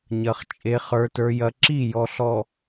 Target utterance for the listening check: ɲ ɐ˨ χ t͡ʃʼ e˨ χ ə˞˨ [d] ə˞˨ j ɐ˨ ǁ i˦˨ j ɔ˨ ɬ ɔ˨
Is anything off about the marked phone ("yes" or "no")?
yes